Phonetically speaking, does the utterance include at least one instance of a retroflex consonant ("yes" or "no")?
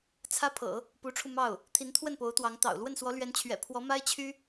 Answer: yes